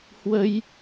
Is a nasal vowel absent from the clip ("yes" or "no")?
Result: yes